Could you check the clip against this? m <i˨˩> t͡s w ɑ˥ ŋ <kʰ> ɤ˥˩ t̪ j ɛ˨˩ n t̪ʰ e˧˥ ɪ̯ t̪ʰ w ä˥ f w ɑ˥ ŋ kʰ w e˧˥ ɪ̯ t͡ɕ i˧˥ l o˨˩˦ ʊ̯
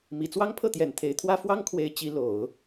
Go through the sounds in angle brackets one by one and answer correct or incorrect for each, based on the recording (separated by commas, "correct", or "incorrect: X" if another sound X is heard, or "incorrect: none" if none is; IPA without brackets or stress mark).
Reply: correct, incorrect: pʰ